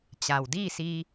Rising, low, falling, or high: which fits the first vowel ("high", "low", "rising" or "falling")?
low